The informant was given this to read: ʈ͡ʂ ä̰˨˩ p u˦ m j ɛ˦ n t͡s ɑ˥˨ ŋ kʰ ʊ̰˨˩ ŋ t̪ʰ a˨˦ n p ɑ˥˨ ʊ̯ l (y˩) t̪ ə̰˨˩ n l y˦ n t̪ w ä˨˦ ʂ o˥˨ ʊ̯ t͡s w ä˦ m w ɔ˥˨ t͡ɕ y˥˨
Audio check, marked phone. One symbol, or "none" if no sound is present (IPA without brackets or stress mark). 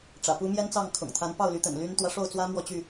y˨˦